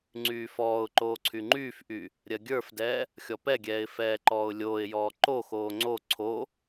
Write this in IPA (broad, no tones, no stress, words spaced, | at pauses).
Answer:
ŋ͡ǀyːfɔːʊ̯ǃoː ǀʰyŋ͡ǃyːfʔy | ɾʲɜɡʲə˞fdɛː | xʲɔpɛɡʲɛːɪ̯ fɛːǃɔːʊ̯lʲoːɪ̯jɔː ǃoxoː ŋ͡ǀo ǀʰo